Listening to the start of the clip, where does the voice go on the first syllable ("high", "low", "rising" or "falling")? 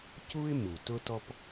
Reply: high